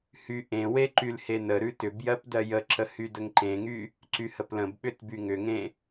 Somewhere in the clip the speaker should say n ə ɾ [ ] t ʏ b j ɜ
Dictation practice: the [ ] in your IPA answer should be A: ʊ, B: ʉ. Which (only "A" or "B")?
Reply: B